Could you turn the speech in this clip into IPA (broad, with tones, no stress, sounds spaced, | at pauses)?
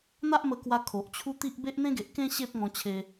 n̪ a˦ ʔ m ə˧ k w a˧ kʰ o˨ ʔ t͡ɕʰ u˦ t̪ i˦ ʔ b e˦ ʔ n̪ ẽ˦ ɡ e˨ ʔ k ẽ˦ ɕ e˦ p̚ ŋ ɔ̃˧ t͡ɕʰ e˧